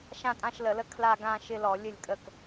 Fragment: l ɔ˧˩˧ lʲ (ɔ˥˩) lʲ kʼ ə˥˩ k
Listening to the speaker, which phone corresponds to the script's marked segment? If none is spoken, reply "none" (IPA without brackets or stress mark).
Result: ə˥˩